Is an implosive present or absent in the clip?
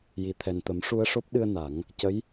present